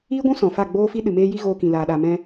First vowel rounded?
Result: no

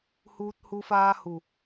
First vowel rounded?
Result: yes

